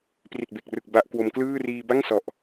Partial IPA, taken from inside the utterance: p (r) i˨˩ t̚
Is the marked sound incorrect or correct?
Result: correct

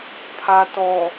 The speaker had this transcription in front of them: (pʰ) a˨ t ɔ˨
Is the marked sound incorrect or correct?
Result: correct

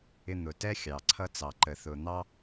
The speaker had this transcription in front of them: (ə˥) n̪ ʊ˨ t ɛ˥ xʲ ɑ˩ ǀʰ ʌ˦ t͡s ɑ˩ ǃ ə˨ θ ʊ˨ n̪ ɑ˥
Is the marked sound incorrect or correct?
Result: incorrect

